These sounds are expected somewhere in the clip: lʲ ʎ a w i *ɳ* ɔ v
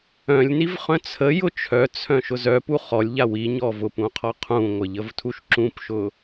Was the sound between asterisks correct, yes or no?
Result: no